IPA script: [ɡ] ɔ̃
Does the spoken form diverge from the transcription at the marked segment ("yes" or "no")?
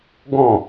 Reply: no